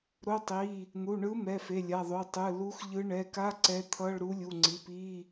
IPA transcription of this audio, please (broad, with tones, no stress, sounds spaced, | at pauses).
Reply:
ɾ o˧˥˧ tˤ i˩˧˩ | n̪ u˩˧˩ ɳ ɯ˧˥ m ɛ˩˧˩ f e˩˧˩ lʲ a˩˧˩ ðˤ o˩˧˩ tˤ ɯ˩˧˩ l u˧˥ x ʎ ɯ˧˥ ɳ ɛ˩˧˩ k a˧˥˧ ǀ ɛ˧˥ t̪ʰ ʌ˧˥˧ ɭ ɾ u˧˥ lʲ u˩˧˩ ŋ͡ǀ i˩˧˩ p i˧˥˧